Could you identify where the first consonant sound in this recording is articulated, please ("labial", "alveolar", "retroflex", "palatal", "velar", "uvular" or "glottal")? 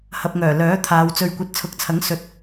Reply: glottal